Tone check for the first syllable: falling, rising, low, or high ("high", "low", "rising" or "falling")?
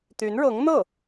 rising